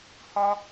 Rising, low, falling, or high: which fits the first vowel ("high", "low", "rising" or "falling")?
high